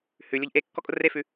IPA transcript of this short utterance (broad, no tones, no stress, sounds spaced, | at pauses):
h ʉ lʲ o ʎ ʔ e kː ɔ kʼ ʊ r e f ʉ